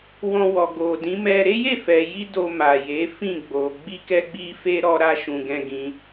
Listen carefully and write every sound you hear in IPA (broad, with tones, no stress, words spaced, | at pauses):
wɔ̃˧wɔ˨ ɡo˨dĩ˨˦mɛ˧ ɾe˦je˦˨fɛ˨ji˧ do˧ma˨je˨˦ fĩ˦˨ɡ͡bo˨ ɡ͡bi˧kɛ˧ɡ͡bi˧fe˧ ɾɔ˧ɾa˧ʃũ˨ ɡɛ̃˧ɡĩ˧